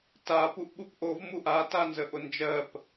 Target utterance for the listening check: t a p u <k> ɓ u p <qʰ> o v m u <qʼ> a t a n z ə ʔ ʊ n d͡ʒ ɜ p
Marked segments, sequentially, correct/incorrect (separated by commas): incorrect, incorrect, incorrect